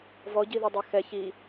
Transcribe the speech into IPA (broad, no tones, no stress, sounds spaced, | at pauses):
v ɔ ɟ i ð ɛ dˤ ɑ x ɛ ç i